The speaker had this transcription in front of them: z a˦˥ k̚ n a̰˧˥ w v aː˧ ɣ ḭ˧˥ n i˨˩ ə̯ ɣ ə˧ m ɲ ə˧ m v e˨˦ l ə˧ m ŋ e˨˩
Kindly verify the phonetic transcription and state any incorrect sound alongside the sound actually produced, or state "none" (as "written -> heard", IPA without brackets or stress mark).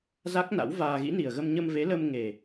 none